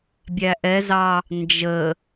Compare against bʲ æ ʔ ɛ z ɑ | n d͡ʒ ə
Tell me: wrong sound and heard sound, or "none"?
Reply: none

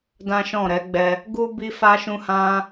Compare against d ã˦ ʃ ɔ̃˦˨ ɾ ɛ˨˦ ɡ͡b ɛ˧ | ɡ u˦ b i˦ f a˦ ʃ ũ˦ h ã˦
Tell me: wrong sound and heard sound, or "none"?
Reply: none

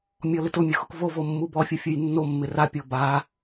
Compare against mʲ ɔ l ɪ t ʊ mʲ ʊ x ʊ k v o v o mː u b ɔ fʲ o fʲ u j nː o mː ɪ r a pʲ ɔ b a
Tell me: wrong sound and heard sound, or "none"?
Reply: none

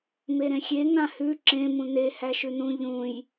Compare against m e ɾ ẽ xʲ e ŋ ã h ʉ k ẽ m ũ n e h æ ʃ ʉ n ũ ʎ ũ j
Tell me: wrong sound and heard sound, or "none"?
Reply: k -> ǁ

